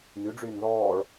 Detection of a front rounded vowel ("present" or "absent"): present